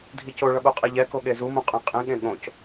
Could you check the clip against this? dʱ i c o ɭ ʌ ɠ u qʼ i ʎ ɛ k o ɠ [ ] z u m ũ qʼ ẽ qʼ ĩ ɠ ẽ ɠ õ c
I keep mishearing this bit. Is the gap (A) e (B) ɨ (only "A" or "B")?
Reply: A